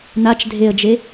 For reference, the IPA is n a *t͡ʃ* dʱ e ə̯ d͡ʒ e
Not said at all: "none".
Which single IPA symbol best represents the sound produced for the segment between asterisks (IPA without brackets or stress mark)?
t͡ʃ